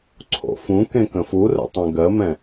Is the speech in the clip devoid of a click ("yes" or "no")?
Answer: no